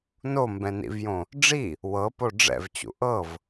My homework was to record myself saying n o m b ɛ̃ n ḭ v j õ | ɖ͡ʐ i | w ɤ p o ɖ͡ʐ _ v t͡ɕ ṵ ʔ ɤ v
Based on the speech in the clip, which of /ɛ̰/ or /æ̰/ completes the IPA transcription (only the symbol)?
ɛ̰